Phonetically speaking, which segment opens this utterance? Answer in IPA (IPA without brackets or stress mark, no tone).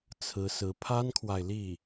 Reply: t͡sʰ